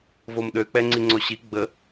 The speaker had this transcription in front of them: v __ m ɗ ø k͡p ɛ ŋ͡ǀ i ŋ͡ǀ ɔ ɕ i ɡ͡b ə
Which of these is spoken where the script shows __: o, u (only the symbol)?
o